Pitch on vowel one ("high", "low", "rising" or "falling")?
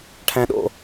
high